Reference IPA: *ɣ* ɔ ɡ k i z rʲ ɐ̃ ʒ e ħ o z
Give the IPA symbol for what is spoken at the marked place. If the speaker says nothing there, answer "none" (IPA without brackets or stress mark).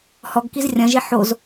h